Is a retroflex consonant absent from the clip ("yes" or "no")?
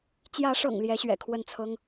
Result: no